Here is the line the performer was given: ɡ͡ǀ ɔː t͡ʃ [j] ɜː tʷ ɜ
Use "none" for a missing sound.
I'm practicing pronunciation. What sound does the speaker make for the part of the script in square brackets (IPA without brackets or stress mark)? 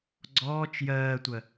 j